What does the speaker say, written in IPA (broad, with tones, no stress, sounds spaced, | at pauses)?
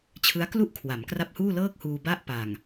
t͡ɕʰ ɯ˦˥ a̯ k l u˥˩ ʔ kʰ w a˩˦ m k r a˦˥ p̚ h uː˥˩ l ɤː˥˩ k̚ h uː˧ b a˥˩ ʔ p a˨˩ ŋ